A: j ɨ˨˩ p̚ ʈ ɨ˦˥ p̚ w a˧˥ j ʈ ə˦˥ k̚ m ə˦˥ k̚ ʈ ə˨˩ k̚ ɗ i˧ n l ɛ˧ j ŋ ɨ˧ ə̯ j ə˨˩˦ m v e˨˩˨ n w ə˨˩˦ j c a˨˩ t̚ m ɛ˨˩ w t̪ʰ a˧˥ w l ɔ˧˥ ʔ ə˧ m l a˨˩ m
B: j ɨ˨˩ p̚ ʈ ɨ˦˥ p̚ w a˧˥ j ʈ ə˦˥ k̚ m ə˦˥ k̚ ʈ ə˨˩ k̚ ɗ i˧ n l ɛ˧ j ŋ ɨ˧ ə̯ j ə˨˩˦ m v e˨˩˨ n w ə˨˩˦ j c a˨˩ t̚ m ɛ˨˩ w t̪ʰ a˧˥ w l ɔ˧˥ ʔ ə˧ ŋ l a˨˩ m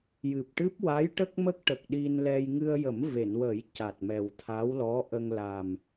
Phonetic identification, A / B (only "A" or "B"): B